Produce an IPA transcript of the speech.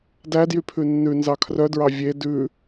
d æ d j y pʰ ʉ nː ʉ n z ɑ kʰ r œ d ɹ ɑ vʲ e d ʉ

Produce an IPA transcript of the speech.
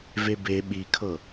v e b e ɓ i kʰ ɤ

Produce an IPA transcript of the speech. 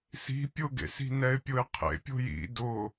s i̤ pʲ ʊ ɡ ḛ s i̤ n ɛ ɪ̯ pʲ ʊ ɪ̯ qʰ ḛ pʲ o̤ j ḭ d ʊ

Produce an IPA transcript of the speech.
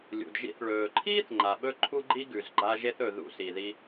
lʲ ṵ˩ d ʒ ḭ˧ θ ɭ ɵː˩ ǃʰ iː˥ θ ŋ͡ǃ a˩ ɓ ɵ˥ ǃʰ u˥ ɡ͡ǃ i˥ ɡ ʉ˩ z ɡ͡ǃ a˧ ʒ e˧ θ ɵ˩ ð ṵ˧ s i˩ ð i˧

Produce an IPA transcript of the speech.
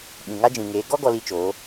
ɓ ĩ˨ ŋ a˦ d͡ʒ ĩ˨ ŋ eː˨˦ ɡ ɔ˦ ɡ ɔ˦ l i˦ t͡ʃ o˨˦

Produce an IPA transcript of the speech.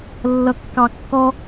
lː ʌ kː ɑ kː ɔ

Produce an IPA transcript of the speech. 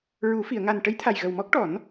ɹ u˨˩˦ f i˨˩˨ ə̯ ŋ a˨˩ n ʈ ə˧˥ j t̪ʰ a˨˩ j ɣ ə˨˩ w m ɔ˦˥ k̚ ʈ ɔ˨˩˦ n

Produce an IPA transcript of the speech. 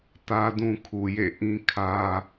t ä˦ d ũ˦ kʰ u˨ j ḛ˦˨ ʔ ĩ˦ kʰ ä˦

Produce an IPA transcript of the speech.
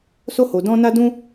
s o˦ h o˧ d ɔ̃˦ n a˦ d ũ˦

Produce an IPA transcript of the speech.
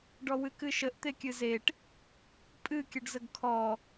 ɖ ɔ w ɨ k ɨ ʃ ə ʔ t̪ e kʲ ɨ z e ʈ | pʼ ɨ kʲ ə ɖ z ə ɡ kʰ ɔ

